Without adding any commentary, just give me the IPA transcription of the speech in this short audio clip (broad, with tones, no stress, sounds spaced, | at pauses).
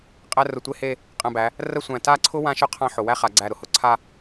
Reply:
qʼ æ˥ r ʊ˧˩ tʷ e˥ h e˥˧ | qʼ æ̃˧ b æ˩˧ | r ə˥ sʷ æ̃˧˩ t a˥˧ ǀʰ ʊ˥ w ã˥ ʃ ʊ˥ qʰ ã˥ ħ ʊ˩˧ w æ˥ χ a˩˧ ɡ͡ǀ æ˧˩ ɾ ʊ˧ h ʊ˧˩ ǀʰ a˥˧